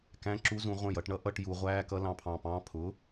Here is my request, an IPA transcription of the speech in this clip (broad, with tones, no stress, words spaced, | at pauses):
kæ̃˧˥˧ ǁu˦˥zũ˨˩˦ ʁʷə̃ː˧˩jʌ˨˩˦ʈɳʌ˦˥ʔʌ˧˥˧ʈ ju˨˩˦ʁʷæː˧˥˧kʌ˦˥ lɑ̃˧˩pʰɑ̃˧˩pɑ̃ː˧˥˧ pʰʊ˩˥